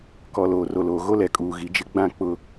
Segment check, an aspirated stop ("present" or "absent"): absent